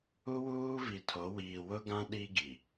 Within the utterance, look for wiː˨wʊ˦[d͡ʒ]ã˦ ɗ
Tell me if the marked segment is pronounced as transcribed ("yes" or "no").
no